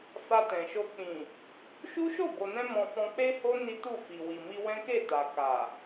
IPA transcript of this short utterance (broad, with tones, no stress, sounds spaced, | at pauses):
f a˧ t ɛ̃˨ ʃ o˧ k͡p ĩ˨ | ʃ u˦ ʃ o˦˨ b o˨ n ɛ̃˧ m ɔ̃˧ f ɔ̃˧ k͡p e˦ h o˦ n i˦ t u˦˨ f i˨ w i˨ m i˧ w ɛ̃˦ k e˦˨ t a˨ k a˨